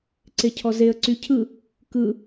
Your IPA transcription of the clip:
ǀ e cʰ ɔ z e ə̯ ǀ y cʰ ɯ | k ɯ

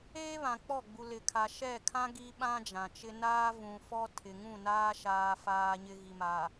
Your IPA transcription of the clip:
eː˦ β ã˨ k͡p ɔ˦˨ ɡ͡b u˨ l ɪ˨ kʰ a˨ ʃ ɛ˦˨ kʰ ã˦ ɡ i˦ ɓ ã˦ d͡ʒ ã˨ t͡ʃ ɪ˦ n aː˦ v ũ˨ f ɔ˦ tʰ ɪ˨ ŋ ũ˦˨ n aː˦ ʃ aː˨ f aː˨ ɲ ɪ˨ ɣ i˨ m a˨

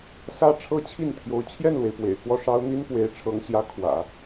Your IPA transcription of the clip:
s ä˥ ʈ͡ʂʰ ɤ˥ t͡ɕʰ i˥˩ n t̪ʰ j o˧˥ ʊ̯ t͡ɕʰ j ɛ˥˩ n l w e˩ ɪ̯ p w ḛ˨˩ ɪ̯ k w ɔ˥˩ ʂ ɑ˥ ʊ̯ n̪ i˥ n p w e˧˥ ɪ̯ ʈ͡ʂʰ ɤ˧˥ ŋ ɕ j ä˧˥ kʰ w ä̰˨˩˦

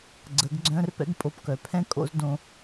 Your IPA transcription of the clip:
ɡ͡ǀ ə˨˦ ɡ ɡ͡ǀ œ̃˦ r p ɛ̰˦ ɡ pʼ o˧ p k œ˨ pʰ ɛ̃˦ kʼ o̰˦ z d õ˧

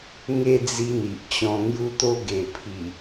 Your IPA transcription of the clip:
ŋ e˥˧ d͡z i˧ n̪ i˨ ʔ t͡ɕ ɔ̃˧ ŋ j u˧ t̪ o˧ ɡ e˨˩ pʰ i˨˩

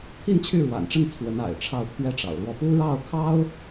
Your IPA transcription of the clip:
pʰ i˥˧ n t͡ɕʰ y˥˩ ɻ w a̰˨˩ n ʈ͡ʂ ə˥˩ n t͡sʰ w ə˧˥ n a̰˨˩ ɪ̯ ʈ͡ʂʰ ɑ˥˩ ʊ̯ pʰ ɥ ɛ˥ ʈ͡ʂ ɑ̰˨˩ ʊ̯ l w ɔ˥˩ p u˥ ɻ ɑ˥˩ ʊ̯ kʰ ɑ˥ ʊ̯

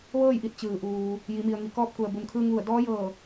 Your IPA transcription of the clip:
ʋ ɤː˥˨ j ʔ i˧ t̚ t͡ɕ ɯː˩ ʔ uː˩ | j i˩˧ m i˩ ə̯ ŋ i˩ k ɔː˧˥ p̚ k u˩ ə̯ b u˩ n kʰ ɯː˧ ŋ ʋ u˧˩ ə̯ d ɔː˧˥ j ɤː˧˩

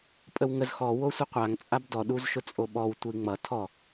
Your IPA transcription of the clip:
pʼ ə w ŋ ə z x ɔ w o sʷ ʌ qʷ a ŋ t͡sʼ a b d ɔ ɗ u z ʃ ʊ t͡sʼ o ɓ ɔ w tʷ ɘ i̯ ŋ͡m ʌ tʰ ɔ

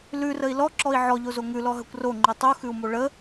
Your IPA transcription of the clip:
l ʉ r ə i̯ l ɔ ǁ ɔ i̯ ʕ ɔ ʎ o z o ŋ ʉ l ɔ ɦ ə kʷ r o ŋ͡ǃ ʉ tˤ u x ʉ u̯ m o ɭ ə

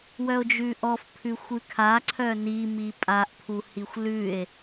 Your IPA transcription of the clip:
w œ o̯ d͡ʒ ʉ ʔ ɔ f pʰ ʉ xʷ ʉ kʰ a ǀʰ œ n i m i pʼ a ʔ pʰ u h i xʷ l ʉ e̯

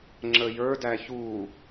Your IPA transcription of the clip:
ŋ͡ǁ ə j ə˞ d æ ç u

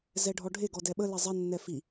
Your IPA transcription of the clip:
z ɛ ɖʱ ɔ ɖʱ e ɡ ɔ d ɛ ɓ ə l ɛ zˤ ɛ nː ɛ f i

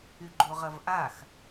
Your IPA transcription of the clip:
y ɡ͡ǃ o ʁ ɐ v ʔ a x

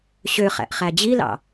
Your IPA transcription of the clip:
ɕ ø χ æ̰ ʔ χ æ d͡ʑ i l ɑ̰

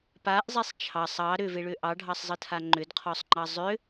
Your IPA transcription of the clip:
p a ʔ zˤ e sˤ t͡ʃʰ ɑ sˤ ɑ ɾ ʏ v e ɭ ʏ ʔ ɑ ɖʱ ɑ sˤ zˤ ɯ tʰ a ŋ͡ǃ ʏ d qʰ ɔ sˤ ŋ͡ǃ ɑ zˤ ʏ

